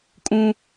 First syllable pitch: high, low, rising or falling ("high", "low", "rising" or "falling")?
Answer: high